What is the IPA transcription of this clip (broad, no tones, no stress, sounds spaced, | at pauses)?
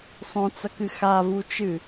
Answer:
sˤ õ t͡s ɐ k ɨ x a v u t͡ʃ ɨ